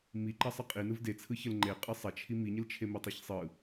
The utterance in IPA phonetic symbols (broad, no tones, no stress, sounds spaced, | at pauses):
m i ǃ ɐ sˤ ə qʼ i n ɯ v d e t͡sʰ ɯ ç ə l ŋ͡ǃ e qʼ ɯ sˤ ɐ t͡ʃʰ i m i ɲ ə l t͡ʃʰ e m i tˤ i ç sˤ ɯ